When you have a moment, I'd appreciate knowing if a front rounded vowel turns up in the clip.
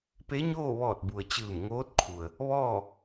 no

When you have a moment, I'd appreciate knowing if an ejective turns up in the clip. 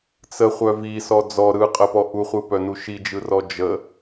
yes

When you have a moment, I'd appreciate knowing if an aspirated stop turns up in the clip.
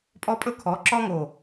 yes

